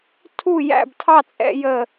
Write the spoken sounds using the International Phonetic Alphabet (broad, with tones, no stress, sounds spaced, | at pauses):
tʰ u˥˩ j æ̰˥˩ b tʰ ɑ˥˩ t͡sʼ ɛ̰˥ j ə˥˩